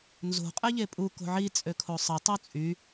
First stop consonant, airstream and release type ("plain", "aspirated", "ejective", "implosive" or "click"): ejective